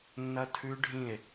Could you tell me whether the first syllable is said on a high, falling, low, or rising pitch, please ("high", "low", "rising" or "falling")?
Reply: high